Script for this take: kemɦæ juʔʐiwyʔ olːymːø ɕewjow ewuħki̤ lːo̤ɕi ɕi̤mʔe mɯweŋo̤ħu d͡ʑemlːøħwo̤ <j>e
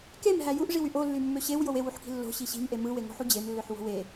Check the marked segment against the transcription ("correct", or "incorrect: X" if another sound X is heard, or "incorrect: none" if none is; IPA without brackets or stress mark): incorrect: w